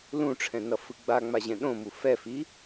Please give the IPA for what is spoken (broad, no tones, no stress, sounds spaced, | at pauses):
l ũ ʈ͡ʂʰ ɛ̃ n ʌ f ɯ ɡ͡b a ŋ͡m a ʑ ɛ̃ ɗ õ m u f ɛ f i